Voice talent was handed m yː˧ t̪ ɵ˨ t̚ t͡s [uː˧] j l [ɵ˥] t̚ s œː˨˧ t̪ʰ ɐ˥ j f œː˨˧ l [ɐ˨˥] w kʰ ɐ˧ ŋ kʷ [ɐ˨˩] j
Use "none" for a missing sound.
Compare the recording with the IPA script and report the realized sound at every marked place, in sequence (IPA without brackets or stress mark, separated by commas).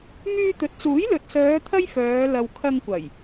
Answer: uː˨˥, ɵ˨, ɐ˨, ɐ˨˩